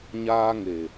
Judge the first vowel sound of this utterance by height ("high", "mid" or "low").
low